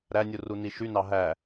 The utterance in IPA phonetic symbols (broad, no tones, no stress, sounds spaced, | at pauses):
ɾ æ nʲ u r u n i ʃ y n ɑ ɦ æ